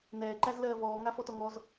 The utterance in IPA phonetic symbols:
nɛːǃæz lɜːvɔːŋa fɔtɔŋɔz

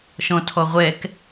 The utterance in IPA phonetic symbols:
ʃɔ̃tʰɔʁʷɛk

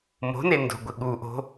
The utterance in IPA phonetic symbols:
mo̤ne ndo̤ɡʷɪ ɠuʔo̤

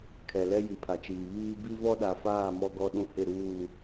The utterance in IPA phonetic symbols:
kʰɛ˨lɛ˦ji˨ pʰa˨t͡ʃiː˨ βiː˦ bi˦vɔ˦ɗa˨faː˦˨ mɔ˦ɡɔ˦ɗũ˦ hɪ˦˨ɾuː˦˨

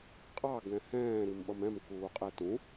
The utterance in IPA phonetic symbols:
qʼɑ ɡɛ̃hɛ̃ː ɾimɓʌmɛ̃m kuːqʼɛtũ

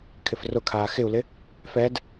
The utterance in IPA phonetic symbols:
kʰɪfrʊkʰaː xɪu̯lɪ | fɛd

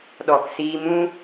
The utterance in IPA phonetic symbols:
ɗɔ˨ksiː˧mũ˦

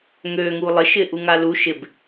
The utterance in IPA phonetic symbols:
ŋøːŋuː lˠɪʃɪː ʔuŋalu ʃɪb

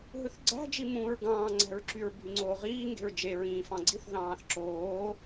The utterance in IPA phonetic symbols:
ɦɯθɡ͡ǀæ̤d͡ʒi mũːɹɡɑ̃ːŋ͡ǀæ̤ɹǁyɹ bʱyŋ͡ǀoːʁiː ŋɡe̤ɹd͡ʒeɹĩː fɑ̃ɡ͡ǀiθ ðɑ̃ːθǁoː

